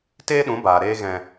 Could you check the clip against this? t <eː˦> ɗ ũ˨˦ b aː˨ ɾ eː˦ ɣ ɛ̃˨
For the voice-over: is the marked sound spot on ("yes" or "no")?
yes